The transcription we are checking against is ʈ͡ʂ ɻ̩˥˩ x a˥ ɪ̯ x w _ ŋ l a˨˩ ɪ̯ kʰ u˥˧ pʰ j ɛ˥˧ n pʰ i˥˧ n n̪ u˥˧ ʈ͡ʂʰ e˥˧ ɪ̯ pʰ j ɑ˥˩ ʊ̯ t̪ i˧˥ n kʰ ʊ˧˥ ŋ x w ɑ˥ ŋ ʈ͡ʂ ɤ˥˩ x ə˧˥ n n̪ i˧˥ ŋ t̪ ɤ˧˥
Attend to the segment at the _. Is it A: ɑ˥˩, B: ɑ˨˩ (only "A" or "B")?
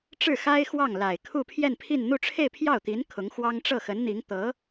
A